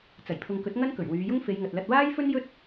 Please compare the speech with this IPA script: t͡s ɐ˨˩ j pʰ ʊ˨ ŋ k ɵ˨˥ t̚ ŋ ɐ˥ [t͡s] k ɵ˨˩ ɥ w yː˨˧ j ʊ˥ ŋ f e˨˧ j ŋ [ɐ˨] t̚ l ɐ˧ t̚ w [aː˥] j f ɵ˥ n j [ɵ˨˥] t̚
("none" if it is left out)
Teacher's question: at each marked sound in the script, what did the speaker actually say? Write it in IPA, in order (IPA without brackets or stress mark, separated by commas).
n, ɐ˨, aː˥, ɵ˥